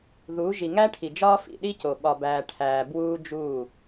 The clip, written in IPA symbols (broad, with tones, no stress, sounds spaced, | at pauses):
ð u˨˦ ʒ i˨ ŋ æ˦ ʈʰ i˨ d͡ʒ ɒː˦ f ḭ˨ ɗ i˦ c o˨ ɓ ɒ˨ b æː˨ ʈʰ æː˨ b w uː˦ d͡ʒ uː˦˨